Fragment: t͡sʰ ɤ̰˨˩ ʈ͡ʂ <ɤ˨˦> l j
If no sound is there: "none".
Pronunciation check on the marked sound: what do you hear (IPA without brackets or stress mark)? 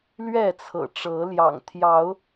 ɤ˨˦